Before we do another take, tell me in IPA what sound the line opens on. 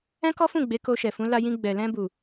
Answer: ɛ̃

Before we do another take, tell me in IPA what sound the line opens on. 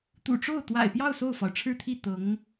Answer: t̪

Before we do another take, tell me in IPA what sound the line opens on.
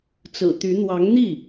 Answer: t͡s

